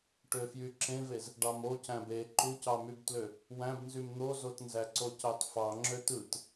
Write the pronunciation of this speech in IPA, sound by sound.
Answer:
ʈ ø f j y ǁ ẽ v e z | ɖ ɑ m o c æ̃ b e ǃ u c ɑ m y b t l ø | w æ̃ b n z y m n̪ o z o t n z æ ǀ o c ɑ t f ɑ ŋ͡ǁ ø t ɯ t

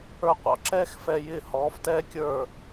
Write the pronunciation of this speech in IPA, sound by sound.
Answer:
ə˞˧ qʷ ɑ̰˩˥ ǁ ɛː˥ x f ɛ˧ j ɪː˥˩ h ɔː˩˥ f t ɛː˥ kʲ ə˞˥˩

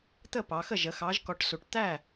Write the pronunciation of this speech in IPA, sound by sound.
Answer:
t̪ ə˥˩ p ɑ˩˧ x ə˥˩ ʒ ə˩˧ x ɑ˨˥ ʒ k ɔ˨˥ ʈ s u˨˩ ʈ t̪ æ˥˩

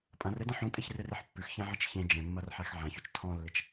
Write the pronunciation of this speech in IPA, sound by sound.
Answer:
pʼ ɐ̃ r e d ɐ̃ ħ ũ tʼ e ç r e r e ħ pː ʉ x ç ẽ ʕ ɐ t͡ʃ ç ẽ d͡ʒ ẽ mː ɐ r ħ æ x ʕ ã ç ʉ t͡ʃ tʰ ɔ̃ lː ɪ t͡ʃ

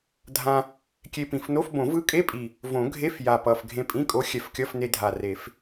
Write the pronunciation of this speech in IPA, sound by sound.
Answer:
dʱ ã˧ | kʲ e˧ p ĩ˨˩ f n o˧˥˧ f b õ˨˩˦ v ɯ˧˥ kʼ e˧˥˧ pʼ i˨˩ | v õ˨˩˦ ɡʱ e˧˥˧ f j a˨˩ p ʌ˨˩ f ɡʱ ẽ˧ pʼ ĩ˧˥˧ kʼ o˧˥ xʲ ɛ˨˩ f kʲ ʌ˧˥˧ f n e˧ dʱ a˨˩ r e˨˩˦ f

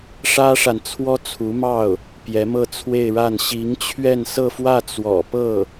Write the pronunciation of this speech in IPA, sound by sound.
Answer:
ʂ ä˥ ʂ a˨ n t͡sʰ w ɔ˥ t͡sʰ u˧˥ m ɑ˥˩ ʊ̯ | p j ɛ˧˥ m ɤ˥˧ t͡sʰ w e˥˧ ɪ̯ ɻ a˥˩ n ɕ i˧˥ ŋ t͡ɕʰ ɥ ɛ˥˧ n s ɤ˥˧ f w ä˥˩ t͡s w ɔ̰˨˩ p ɤ˥˩

